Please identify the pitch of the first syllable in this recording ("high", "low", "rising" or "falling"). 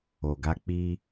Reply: low